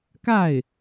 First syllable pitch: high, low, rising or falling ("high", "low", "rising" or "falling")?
falling